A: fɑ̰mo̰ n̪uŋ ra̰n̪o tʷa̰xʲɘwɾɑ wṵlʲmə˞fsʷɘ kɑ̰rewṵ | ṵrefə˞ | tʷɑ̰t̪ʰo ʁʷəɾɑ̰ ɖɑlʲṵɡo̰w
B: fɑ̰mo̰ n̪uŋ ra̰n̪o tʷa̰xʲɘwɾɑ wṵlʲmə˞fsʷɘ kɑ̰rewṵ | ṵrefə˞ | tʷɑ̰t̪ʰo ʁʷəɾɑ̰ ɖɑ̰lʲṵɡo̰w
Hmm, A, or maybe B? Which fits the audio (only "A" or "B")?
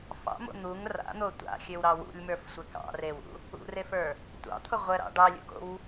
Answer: A